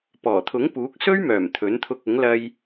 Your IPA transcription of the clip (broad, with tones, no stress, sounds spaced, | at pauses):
p ɔː˨˩ t̪ʰ ʊ˨˥ ŋ p uː˨˥ k̚ s ɵ˥ ɥ m œː˨˩ m t̪ʰ ɵ˨˥ n t̪ʰ ʊ˧ k̚ ʊ˨˥ ŋ l ɐ˧ j